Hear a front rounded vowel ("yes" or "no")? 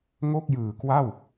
no